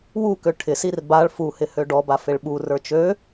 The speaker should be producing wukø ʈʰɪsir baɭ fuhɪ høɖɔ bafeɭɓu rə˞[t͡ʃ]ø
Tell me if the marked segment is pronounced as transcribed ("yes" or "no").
yes